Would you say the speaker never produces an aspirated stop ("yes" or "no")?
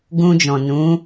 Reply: yes